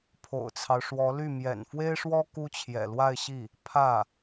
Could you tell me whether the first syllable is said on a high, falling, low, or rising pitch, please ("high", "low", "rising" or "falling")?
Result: low